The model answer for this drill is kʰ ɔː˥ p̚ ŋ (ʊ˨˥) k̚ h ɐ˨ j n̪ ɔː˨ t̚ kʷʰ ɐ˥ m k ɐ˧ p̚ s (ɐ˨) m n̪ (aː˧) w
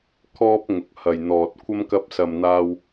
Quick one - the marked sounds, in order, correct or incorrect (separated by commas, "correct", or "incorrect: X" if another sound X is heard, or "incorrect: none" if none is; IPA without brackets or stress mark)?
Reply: correct, correct, correct